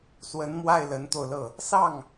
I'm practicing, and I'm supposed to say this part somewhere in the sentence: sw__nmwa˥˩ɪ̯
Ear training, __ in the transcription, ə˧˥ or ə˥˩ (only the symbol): ə˧˥